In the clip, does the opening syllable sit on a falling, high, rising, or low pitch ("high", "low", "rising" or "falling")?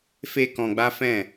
high